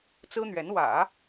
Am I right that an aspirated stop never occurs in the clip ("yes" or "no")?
yes